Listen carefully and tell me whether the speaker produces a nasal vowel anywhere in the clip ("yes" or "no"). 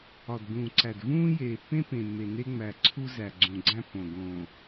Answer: yes